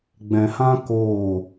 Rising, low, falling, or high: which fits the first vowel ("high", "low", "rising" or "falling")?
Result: low